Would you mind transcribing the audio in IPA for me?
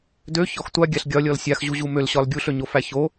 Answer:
d ø ç ɔ x tʷ a ɡʲ a ɬ ɡʲ ɒ lʲ ɔ l sʲ a x ʑ u ʑ u m ø l ɕ ɒ l ɡʲ u ɬ ø ɲ o f æ ç o

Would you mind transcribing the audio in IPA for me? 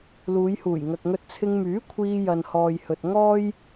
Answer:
l uː˨˧ j h uː˨˩ j ŋ ɐ˨ k̚ ŋ ɵ˧ t̚ t͡sʰ ɪ˧ ŋ m yː˨˥ kʷʰ iː˧ j ɐ˨ n h ɔː˨ j h ɵ˨ t̚ ŋ ɔː˥ j

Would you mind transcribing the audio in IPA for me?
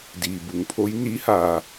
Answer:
d iː˩ b u˩˧ ŋ pʰ o˧˥ j n i˧˥ h aː˩

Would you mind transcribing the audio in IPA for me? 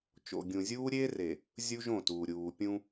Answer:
t͡ʃ o̰˨ ɡʲ ũ˨ zʲ uː˦ ɾʲ eː˦ r e˨ | zʲ u˦ ʒ õ˦˨ t uː˨ ɾʲ uː˨ pʲ ũ˦

